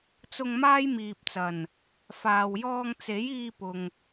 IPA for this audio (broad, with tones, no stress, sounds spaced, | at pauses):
t͡s ʊ˧ ŋ m aː˥ j m iː˨ p̚ t͡s ɐ˨˩ n | f aː˨ w j ɔː˧ ŋ t͡s e˨˥ j iː˧ p ʊ˨ ŋ